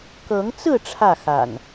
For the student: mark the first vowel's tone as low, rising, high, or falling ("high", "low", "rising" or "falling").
rising